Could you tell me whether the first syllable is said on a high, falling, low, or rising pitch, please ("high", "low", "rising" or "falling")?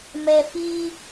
low